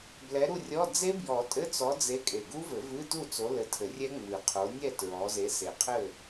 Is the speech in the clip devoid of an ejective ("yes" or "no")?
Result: no